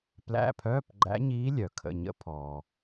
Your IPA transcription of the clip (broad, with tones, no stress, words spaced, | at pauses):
plæ̰˧˥˧pʰœː˧˥˧p ɡ͡ǃæ̰˧˥ɲiː˧˥ lʲœ˩kʰə̰˩˧˩ ɲə̰˧˥pʰɔː˩